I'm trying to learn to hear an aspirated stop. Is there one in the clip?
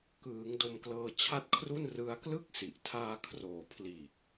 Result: yes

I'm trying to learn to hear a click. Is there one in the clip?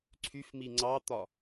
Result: yes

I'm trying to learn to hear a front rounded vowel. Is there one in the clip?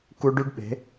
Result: yes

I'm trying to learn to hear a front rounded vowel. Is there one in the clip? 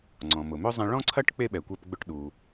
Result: yes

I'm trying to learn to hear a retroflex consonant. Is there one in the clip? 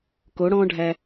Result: yes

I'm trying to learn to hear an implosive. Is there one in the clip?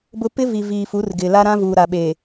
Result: yes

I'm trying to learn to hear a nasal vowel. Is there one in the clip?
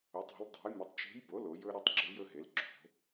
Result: no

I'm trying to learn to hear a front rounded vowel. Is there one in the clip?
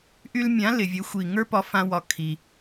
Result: yes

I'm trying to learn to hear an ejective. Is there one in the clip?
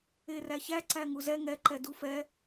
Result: no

